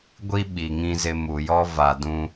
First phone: ɡʷ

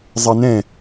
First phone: zˤ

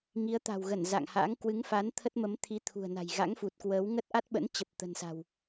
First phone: ŋ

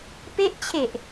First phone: p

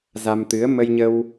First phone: z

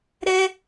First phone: ɾ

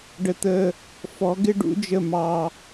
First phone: ɖ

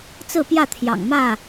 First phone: t͡s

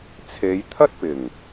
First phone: t͡sʰ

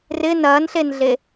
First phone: r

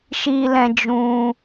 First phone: ʃ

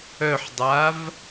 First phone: œ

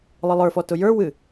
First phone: lˠ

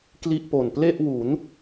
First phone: k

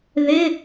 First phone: ð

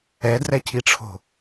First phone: ɛ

